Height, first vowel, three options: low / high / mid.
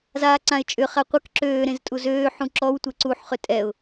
low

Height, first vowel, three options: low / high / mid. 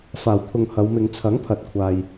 low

